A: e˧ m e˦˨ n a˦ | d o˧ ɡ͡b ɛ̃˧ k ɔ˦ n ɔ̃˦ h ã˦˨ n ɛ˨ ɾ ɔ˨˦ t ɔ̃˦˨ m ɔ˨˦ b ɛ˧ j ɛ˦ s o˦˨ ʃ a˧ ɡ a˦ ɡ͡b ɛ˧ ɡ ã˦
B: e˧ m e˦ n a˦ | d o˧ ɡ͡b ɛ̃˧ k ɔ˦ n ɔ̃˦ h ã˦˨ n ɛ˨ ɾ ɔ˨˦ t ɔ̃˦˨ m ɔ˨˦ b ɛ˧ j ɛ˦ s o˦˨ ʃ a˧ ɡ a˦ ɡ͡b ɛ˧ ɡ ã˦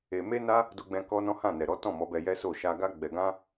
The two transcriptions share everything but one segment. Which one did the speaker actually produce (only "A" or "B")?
B